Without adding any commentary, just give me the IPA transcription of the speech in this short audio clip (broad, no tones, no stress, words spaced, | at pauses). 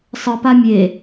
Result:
sˤɯpa mʲe